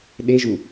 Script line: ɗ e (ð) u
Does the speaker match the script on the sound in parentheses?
no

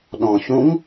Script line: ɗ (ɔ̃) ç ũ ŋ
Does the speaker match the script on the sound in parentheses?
yes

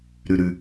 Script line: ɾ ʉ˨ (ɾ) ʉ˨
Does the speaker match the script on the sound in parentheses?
yes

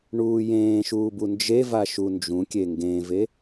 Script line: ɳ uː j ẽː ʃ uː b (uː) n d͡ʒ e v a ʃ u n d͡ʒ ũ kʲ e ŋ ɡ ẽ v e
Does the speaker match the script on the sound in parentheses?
no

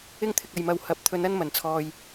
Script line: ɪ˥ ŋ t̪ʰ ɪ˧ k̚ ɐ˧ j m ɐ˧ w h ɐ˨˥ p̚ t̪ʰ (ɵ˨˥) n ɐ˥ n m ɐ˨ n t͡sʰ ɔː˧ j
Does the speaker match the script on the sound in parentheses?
no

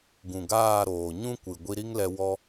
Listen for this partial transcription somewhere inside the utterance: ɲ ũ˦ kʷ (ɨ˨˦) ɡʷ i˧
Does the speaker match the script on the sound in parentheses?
no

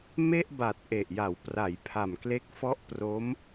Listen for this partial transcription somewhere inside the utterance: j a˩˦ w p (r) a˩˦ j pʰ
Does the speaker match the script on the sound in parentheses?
yes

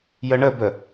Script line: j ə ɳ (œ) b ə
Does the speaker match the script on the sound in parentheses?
no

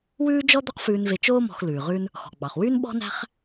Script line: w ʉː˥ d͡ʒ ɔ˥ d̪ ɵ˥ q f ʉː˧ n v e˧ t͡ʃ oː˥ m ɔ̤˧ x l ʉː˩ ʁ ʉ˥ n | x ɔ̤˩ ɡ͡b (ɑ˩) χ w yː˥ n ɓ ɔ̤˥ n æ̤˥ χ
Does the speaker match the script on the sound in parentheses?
yes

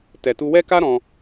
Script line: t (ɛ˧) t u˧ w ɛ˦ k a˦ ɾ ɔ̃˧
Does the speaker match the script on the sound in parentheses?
no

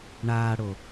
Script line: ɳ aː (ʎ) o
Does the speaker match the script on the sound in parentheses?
no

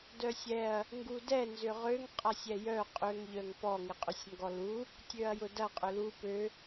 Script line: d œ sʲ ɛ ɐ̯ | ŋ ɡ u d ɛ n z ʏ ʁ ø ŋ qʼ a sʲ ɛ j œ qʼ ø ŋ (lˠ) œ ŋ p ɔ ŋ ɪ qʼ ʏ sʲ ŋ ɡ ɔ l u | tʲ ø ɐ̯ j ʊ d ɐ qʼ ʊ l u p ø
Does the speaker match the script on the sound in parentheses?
no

